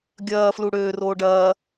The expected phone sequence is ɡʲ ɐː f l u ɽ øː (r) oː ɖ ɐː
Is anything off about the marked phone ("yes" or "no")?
no